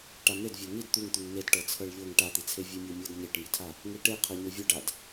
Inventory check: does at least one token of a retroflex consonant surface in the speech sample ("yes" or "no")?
yes